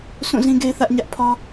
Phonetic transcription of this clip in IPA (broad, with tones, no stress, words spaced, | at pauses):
sʰũ˦˨zĩ˦ ɡe˦ɪ̯θä˦ʔ ɲä˦ʔpʰɔ˦